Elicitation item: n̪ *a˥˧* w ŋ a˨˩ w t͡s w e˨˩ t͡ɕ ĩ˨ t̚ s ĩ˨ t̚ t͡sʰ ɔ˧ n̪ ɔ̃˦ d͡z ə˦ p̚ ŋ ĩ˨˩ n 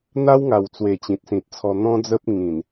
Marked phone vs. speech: incorrect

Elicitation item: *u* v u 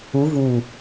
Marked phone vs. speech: correct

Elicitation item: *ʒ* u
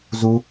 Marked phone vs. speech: incorrect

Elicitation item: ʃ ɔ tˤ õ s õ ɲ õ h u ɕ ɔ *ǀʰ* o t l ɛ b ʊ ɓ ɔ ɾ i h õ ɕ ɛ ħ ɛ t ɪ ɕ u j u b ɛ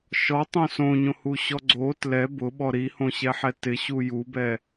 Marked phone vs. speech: incorrect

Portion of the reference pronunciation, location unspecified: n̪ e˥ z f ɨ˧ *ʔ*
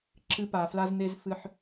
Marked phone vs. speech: incorrect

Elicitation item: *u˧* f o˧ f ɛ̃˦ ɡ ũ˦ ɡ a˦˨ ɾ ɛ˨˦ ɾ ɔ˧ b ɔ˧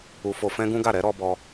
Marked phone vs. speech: correct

